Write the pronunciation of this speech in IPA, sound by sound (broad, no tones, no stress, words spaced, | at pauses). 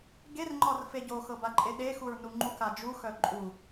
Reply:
ɡerŋ͡ǃɒr feɟoxɤ baǃʼeɗexuɹ nuŋ͡ǃuka d͡ʒuxœ ǃʼu